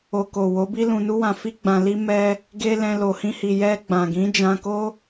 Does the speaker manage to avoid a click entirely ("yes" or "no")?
yes